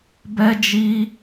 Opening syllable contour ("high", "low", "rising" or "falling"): high